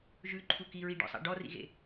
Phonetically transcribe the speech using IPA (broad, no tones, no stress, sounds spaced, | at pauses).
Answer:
ʒ ʉ ǃʰ u k i ɹ i ɖ ɔ̰ sˤ ɑ̰ ɖ ɔ r ḭ ɣ ḛ